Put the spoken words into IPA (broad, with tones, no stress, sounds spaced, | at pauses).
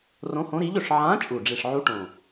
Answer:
r õ˧˥ h õ˧˥ ɾ i˧˥ ʎ ɵ˨˩ ʂ ʕ ã˧˥ t͡ʃʼ u˨˩ ɖ͡ʐ i˨˩ ʂ ʕ u˧˥ ʈ õ˨˩